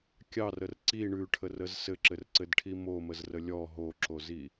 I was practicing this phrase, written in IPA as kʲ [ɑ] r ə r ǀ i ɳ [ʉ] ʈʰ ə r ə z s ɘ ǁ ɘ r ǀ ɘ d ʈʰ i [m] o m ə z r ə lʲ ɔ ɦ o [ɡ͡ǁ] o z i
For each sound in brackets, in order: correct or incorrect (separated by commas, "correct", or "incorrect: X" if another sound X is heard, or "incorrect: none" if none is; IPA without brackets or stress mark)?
correct, correct, correct, incorrect: ǁ